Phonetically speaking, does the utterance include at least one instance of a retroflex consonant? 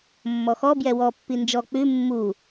no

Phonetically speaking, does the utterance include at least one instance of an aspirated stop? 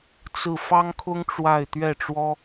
yes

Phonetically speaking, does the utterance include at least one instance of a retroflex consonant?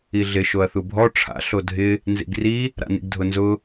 yes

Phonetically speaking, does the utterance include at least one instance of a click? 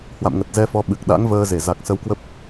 no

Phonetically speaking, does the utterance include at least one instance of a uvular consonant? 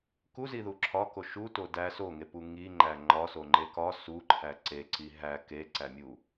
no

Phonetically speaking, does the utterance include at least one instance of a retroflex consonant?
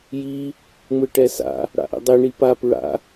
yes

